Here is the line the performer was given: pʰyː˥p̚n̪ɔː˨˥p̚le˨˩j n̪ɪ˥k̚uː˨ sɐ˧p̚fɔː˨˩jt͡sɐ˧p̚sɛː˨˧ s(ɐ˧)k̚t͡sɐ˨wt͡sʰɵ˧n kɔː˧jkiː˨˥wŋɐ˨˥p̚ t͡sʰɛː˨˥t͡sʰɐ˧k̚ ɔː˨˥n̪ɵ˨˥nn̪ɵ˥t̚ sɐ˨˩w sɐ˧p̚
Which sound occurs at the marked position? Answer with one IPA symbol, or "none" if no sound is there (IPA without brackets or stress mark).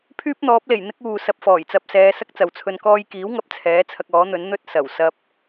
ɐ˥